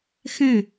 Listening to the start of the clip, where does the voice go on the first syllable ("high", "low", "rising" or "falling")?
falling